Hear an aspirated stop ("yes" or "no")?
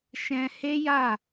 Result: no